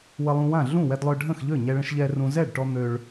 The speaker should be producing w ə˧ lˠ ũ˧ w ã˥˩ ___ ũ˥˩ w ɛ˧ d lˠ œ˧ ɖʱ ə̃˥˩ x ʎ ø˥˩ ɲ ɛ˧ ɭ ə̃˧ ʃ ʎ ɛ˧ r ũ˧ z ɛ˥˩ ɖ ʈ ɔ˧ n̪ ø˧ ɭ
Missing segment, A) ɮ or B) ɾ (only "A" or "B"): A